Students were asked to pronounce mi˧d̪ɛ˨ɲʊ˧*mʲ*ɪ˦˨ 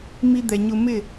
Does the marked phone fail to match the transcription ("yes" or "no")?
yes